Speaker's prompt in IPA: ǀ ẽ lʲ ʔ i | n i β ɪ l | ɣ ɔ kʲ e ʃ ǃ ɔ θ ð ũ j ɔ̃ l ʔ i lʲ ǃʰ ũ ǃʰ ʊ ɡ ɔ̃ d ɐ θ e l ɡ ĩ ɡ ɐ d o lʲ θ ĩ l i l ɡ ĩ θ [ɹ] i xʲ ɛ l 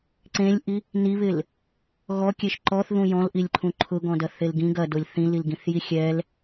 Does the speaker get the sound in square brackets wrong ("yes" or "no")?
yes